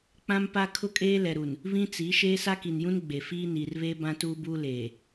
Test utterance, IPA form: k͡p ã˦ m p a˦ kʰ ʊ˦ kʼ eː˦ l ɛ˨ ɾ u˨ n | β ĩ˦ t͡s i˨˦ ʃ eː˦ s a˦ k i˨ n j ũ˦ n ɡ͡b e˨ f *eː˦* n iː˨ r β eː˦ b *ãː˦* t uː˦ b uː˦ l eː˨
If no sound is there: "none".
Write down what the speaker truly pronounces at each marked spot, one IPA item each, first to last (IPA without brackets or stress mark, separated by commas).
iː˦, ã˦